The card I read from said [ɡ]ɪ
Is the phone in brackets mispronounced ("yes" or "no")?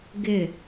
no